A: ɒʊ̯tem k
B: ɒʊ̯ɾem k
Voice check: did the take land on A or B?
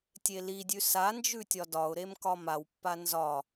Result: B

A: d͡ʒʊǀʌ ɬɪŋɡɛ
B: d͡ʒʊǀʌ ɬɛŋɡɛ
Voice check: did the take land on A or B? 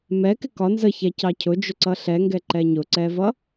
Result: B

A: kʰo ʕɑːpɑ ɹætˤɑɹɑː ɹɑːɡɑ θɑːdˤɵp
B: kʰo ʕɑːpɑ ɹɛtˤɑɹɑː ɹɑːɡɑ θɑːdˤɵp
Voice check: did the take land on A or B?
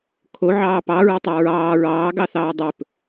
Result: B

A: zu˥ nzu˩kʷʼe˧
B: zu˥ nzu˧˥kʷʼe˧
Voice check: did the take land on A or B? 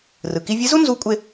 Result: B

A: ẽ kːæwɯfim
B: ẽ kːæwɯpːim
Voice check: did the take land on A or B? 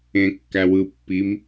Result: B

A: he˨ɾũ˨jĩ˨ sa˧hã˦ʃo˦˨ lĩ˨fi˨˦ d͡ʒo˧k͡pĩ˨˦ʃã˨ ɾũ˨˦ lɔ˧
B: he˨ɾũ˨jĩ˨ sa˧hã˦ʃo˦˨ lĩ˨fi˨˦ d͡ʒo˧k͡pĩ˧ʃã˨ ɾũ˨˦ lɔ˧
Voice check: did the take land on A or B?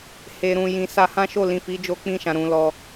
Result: B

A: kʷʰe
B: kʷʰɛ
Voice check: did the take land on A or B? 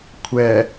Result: B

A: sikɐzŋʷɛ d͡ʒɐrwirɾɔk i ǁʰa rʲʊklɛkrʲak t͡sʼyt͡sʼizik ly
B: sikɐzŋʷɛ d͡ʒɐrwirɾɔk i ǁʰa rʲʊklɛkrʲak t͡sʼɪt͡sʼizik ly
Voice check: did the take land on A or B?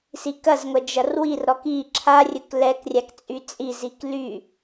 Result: A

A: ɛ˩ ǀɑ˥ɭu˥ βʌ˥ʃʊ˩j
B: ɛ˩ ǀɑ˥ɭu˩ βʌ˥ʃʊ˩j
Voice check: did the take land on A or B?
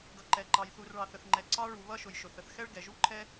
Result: B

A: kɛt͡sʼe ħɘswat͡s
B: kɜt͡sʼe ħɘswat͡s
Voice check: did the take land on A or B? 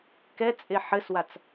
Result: A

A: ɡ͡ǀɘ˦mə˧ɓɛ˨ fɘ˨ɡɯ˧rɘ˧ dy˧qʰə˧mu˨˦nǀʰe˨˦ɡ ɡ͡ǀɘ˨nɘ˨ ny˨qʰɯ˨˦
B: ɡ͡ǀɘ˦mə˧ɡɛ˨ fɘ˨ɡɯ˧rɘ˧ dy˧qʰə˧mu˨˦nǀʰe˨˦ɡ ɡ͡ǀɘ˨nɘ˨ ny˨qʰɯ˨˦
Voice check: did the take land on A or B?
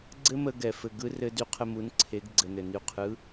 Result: B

